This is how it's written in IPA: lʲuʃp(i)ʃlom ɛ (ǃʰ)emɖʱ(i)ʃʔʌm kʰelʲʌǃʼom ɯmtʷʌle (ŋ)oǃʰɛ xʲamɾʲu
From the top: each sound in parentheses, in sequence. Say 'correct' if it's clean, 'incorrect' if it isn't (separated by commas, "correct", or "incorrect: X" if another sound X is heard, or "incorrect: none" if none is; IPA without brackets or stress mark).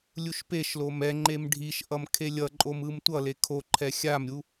incorrect: e, incorrect: ŋ͡ǃ, correct, incorrect: kʰ